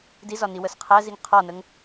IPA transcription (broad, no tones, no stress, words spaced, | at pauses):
dizɒni wəsqʰæziŋ qʰɒnəŋ